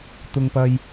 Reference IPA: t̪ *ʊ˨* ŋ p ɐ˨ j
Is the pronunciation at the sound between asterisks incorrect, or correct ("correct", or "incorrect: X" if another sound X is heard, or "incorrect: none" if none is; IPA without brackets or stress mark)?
correct